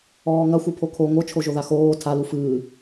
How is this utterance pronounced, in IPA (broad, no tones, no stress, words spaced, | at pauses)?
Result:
ɔːŋɐ xʷɨpʰokʰo ŋot͡ʃʰo ʒoðaxoː tʰalu fɨː